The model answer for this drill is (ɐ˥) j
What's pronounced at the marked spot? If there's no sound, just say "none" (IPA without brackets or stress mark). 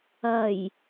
ɐ˨˩